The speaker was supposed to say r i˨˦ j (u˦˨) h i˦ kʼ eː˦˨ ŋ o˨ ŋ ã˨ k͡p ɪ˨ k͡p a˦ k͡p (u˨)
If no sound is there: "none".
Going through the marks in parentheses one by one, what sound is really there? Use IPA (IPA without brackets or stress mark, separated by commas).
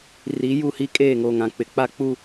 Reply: u˦˨, u˦